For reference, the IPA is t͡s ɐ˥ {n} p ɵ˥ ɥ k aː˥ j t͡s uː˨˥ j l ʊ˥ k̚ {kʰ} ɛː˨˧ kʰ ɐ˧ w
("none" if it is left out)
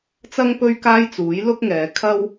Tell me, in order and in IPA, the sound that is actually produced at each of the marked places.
ŋ, ŋ

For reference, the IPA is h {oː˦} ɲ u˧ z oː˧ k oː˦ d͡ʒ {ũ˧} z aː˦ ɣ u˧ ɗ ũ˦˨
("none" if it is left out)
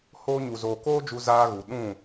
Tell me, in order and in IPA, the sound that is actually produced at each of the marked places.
oː˦, u˧

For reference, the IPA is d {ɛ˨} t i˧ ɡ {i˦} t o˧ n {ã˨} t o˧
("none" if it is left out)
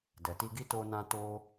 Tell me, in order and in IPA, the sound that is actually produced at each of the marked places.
ɛ˨, i˦, ã˧

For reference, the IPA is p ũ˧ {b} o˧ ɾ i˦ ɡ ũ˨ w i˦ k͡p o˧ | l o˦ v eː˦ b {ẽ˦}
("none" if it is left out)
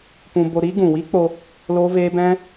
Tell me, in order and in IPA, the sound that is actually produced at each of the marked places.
b, ɛ̃˦

